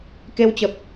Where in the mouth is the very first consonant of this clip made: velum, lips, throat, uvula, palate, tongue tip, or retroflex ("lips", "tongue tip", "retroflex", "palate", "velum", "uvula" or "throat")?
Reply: velum